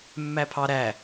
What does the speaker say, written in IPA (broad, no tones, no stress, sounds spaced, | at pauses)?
mː æ pʰ ɑ ɾ æ